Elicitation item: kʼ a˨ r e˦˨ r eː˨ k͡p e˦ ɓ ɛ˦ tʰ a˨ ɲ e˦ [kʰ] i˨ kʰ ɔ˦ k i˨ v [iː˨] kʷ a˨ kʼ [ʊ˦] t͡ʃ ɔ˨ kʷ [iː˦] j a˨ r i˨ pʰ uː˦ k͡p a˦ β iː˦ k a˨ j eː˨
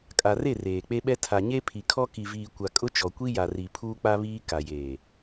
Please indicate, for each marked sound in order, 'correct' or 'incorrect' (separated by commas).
incorrect, correct, correct, incorrect